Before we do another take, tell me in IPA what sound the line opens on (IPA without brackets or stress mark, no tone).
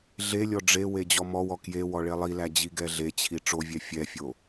ɮ